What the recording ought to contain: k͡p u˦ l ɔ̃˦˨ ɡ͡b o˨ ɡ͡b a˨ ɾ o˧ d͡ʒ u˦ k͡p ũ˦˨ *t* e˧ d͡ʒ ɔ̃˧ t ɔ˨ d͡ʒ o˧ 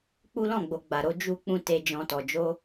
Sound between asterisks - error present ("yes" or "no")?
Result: no